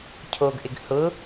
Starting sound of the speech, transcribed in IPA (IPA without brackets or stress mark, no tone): cʰ